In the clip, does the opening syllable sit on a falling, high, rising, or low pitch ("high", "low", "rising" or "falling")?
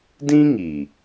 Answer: high